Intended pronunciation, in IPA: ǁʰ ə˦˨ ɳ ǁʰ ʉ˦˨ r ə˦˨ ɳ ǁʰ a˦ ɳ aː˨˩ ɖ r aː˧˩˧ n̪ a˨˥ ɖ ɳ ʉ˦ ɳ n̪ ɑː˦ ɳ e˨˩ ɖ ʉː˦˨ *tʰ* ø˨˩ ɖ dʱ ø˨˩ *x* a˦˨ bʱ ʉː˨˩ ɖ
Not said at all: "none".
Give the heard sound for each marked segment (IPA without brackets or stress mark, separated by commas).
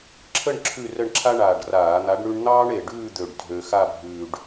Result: d̪, x